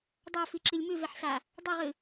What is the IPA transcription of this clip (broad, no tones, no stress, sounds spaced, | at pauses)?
dˤ a f i ǁ i lʲ m ʉ v e ħ s a | dˤ i ʁ ɨ